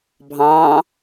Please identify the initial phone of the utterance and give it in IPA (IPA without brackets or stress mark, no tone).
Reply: bʱ